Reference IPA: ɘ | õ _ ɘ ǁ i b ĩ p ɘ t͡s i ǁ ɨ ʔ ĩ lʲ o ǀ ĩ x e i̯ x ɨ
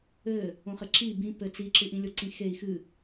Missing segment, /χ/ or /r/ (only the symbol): χ